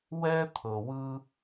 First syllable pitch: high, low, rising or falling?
high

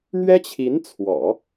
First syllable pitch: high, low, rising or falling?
high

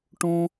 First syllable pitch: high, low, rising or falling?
high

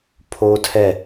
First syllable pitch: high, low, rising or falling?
high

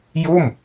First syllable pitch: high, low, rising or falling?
falling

